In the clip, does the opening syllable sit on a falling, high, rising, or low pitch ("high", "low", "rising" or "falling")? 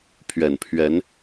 low